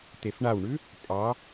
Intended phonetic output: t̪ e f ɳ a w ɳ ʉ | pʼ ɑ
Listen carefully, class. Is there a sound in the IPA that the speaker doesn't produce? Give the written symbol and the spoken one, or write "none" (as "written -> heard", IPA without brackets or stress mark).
none